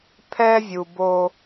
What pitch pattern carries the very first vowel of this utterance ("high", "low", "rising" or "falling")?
high